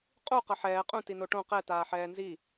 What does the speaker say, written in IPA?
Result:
qʼu qʌħɛː qʼũ tinoʈõ qɛ taːħɛːnzi

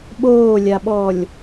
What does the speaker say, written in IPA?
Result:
ɓoːlʲaɓɔːlʲ

